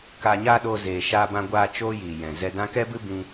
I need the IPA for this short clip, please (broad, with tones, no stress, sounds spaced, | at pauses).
k aː˨ ɲ aː˧ ɗ o˧ z eː˨ ʃ aː˧ b ã˧ ɡʷ aː˧ t͡ʃ oː˦ j iː˨ j ɛ̃˨ z ɛ˧ d ã˦ k ɛ˦ b ɨ˦ b ĩ˦